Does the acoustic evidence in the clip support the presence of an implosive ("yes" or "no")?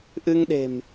yes